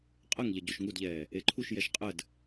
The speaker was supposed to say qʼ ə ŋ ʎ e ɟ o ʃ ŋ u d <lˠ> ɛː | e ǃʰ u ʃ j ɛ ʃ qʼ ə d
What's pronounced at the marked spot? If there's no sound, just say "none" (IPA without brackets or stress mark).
ʎ